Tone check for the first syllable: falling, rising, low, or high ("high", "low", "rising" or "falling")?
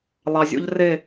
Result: low